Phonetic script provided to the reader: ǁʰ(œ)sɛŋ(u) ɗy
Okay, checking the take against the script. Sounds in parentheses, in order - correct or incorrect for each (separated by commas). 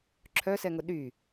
correct, incorrect